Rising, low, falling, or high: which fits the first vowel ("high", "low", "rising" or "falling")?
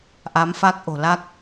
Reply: rising